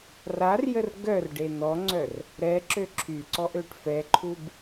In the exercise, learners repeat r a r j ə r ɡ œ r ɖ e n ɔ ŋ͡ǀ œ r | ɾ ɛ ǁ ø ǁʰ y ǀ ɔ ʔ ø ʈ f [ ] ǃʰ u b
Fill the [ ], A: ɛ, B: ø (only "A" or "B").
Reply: A